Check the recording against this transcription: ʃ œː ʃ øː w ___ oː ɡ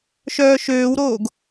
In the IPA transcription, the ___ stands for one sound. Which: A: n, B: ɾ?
B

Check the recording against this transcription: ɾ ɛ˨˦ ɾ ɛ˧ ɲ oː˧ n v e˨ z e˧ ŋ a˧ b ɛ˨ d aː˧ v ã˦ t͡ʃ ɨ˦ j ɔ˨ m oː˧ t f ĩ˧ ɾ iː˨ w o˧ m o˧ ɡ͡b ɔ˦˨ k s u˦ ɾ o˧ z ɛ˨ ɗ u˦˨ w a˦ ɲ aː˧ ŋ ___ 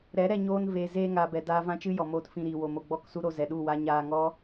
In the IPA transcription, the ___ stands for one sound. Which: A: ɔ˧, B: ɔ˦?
B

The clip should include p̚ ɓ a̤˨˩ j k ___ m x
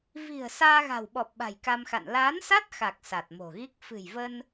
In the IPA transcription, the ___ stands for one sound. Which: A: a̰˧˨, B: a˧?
B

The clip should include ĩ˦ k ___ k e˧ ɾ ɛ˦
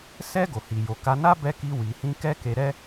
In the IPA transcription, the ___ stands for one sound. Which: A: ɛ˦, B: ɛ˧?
A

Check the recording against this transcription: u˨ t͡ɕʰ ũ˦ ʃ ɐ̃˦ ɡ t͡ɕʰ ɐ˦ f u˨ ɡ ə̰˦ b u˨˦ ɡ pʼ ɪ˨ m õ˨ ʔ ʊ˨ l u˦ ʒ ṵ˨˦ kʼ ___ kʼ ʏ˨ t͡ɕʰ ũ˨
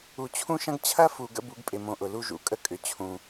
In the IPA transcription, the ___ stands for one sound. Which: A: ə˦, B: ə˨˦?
A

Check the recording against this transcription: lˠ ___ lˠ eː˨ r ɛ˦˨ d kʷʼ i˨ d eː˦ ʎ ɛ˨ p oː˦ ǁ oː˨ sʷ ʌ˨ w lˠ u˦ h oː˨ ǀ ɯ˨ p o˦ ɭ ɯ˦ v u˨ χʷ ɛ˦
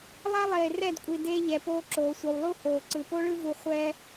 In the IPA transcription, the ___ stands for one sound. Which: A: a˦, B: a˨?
A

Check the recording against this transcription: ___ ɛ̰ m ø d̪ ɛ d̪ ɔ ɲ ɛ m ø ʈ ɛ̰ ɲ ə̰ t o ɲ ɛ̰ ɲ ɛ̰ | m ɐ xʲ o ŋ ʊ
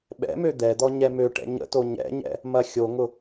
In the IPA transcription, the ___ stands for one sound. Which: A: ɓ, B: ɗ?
A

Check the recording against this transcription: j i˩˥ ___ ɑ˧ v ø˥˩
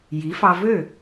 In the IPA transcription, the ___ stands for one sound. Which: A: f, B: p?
A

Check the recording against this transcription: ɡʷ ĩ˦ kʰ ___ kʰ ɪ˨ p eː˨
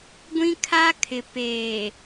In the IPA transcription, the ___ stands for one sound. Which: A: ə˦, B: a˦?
B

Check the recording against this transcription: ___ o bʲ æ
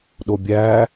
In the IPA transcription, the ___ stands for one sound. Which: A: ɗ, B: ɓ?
A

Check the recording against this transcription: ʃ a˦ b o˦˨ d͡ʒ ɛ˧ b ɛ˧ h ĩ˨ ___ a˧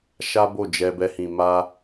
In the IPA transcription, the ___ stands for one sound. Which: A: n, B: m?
B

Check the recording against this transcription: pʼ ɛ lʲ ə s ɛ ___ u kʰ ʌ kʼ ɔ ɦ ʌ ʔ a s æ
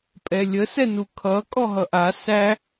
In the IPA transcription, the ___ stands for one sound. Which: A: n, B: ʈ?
A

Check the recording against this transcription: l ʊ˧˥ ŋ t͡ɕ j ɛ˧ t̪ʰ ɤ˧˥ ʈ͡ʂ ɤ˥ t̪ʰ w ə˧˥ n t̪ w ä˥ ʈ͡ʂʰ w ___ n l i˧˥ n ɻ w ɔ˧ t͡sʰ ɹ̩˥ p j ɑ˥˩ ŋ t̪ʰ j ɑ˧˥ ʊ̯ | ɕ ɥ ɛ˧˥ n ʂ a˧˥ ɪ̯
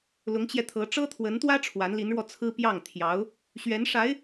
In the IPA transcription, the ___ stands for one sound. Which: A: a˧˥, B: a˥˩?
A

